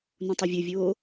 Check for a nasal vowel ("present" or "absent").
present